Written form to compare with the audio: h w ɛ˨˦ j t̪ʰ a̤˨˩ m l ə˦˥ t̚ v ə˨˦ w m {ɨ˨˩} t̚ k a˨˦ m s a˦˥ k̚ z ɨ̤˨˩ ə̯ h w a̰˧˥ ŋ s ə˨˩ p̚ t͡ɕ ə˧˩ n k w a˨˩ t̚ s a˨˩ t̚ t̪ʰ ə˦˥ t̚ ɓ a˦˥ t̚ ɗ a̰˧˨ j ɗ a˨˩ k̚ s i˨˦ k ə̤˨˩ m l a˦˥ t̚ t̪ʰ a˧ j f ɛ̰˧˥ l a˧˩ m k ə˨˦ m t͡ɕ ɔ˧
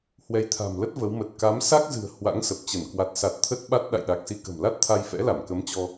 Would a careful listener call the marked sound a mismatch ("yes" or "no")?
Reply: yes